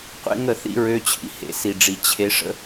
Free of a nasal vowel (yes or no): yes